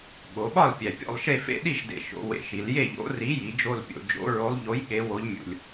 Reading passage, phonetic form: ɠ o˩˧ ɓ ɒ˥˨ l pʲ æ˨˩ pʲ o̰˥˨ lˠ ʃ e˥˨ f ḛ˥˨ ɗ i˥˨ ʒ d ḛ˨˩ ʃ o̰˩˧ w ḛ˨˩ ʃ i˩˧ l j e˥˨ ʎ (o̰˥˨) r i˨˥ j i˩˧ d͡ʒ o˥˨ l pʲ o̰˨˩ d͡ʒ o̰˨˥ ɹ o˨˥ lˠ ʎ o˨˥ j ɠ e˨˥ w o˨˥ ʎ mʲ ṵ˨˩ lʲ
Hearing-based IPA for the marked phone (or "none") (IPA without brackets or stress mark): o̰˨˥